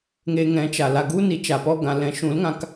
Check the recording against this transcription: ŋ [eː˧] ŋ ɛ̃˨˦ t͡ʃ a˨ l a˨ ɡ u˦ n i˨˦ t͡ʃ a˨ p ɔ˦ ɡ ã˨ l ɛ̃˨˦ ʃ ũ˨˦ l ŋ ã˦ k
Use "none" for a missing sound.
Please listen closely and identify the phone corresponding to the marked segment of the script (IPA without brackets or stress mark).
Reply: e˧